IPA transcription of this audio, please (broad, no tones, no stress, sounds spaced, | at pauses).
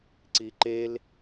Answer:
ǀ i ǃ e l